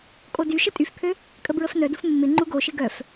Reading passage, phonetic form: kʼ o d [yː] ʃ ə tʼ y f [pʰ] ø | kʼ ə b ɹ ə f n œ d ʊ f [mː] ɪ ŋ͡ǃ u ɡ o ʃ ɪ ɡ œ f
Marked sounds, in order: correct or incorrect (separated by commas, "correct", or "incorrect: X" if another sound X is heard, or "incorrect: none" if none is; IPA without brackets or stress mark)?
incorrect: y, correct, correct